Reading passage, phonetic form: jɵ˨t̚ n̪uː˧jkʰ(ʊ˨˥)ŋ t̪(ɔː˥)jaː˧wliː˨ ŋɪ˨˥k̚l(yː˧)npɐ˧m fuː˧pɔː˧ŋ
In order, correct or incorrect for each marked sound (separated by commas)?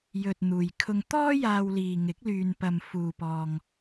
incorrect, correct, correct